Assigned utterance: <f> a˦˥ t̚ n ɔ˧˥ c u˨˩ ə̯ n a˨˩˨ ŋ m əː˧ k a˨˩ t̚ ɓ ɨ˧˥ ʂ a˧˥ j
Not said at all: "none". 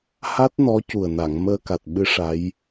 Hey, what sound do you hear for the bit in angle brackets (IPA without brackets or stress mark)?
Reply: h